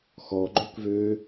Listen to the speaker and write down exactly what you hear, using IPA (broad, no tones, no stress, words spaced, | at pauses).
xɔɡ͡ǃøkvø